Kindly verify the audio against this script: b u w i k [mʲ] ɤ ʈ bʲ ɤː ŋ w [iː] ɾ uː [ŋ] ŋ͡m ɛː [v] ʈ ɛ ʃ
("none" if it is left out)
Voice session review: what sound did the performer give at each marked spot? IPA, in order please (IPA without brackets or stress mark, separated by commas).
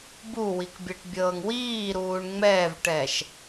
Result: bʲ, iː, ɳ, v